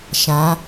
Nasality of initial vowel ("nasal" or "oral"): nasal